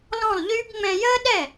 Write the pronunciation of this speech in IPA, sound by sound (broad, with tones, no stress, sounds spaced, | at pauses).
l ɔ̃˥˩ lˠ ʎ yː˥ b ŋ͡m ɛ̃˧ j əː˥ ɗ ɛ˥˩